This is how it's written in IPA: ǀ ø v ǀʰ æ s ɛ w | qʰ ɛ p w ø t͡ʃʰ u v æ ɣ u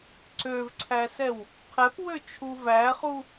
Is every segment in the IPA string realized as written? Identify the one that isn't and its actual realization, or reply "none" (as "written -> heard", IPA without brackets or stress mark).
ɣ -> χ